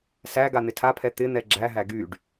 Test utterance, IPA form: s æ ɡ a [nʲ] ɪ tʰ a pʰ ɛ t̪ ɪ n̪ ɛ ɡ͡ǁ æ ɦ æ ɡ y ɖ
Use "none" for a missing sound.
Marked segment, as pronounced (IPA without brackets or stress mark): n̪